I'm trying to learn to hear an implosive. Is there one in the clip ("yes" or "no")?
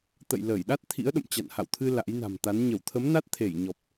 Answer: yes